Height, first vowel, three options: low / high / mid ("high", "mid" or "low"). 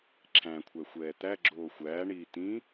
low